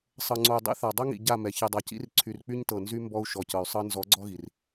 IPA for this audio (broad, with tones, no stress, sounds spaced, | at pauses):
sˤ ɤ˨ ŋ͡ǀ o˨ y̯ dˤ ḭ˦ θ a˨ dˤ o˦ ŋ ḭ˨ ɟ a˦˨ m ɛ˨ ç i˨ dˤ a˨ c ḭ˦ r ǀʰ y˨ r k͡p y˦ ɲ t ɤ˨ n z y˦ m b ɔ˦ u̯ ʃ ɔ˨ c ɤ˨ y̯ sˤ ɤ˦ n z ɔ˨˦ ɡ͡ǀ ɔ˦ ɣ i˨ r